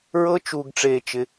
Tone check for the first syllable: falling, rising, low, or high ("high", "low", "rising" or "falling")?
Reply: high